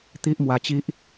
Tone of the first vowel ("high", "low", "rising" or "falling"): high